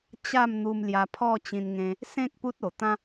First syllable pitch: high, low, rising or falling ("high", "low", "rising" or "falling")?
falling